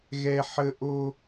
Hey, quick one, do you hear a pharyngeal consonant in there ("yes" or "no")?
yes